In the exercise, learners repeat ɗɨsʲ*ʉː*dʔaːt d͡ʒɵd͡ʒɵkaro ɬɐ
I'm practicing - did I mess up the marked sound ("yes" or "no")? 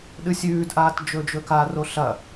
no